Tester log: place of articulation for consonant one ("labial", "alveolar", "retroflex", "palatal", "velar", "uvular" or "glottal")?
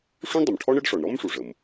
retroflex